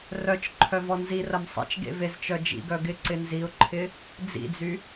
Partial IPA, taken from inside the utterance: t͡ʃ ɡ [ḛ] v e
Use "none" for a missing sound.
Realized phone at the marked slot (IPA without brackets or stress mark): ḛ